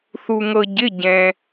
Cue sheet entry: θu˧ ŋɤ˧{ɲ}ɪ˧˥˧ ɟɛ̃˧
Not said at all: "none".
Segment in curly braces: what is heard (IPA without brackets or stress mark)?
ɟ